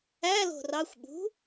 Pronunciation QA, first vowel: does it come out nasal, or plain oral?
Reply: oral